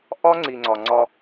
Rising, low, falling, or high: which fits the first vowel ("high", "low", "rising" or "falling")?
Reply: high